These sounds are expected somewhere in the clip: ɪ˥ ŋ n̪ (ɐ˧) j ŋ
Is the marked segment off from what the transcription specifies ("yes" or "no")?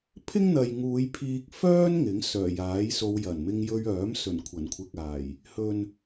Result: yes